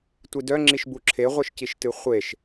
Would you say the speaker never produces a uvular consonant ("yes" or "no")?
no